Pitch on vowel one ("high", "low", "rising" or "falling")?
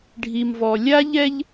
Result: low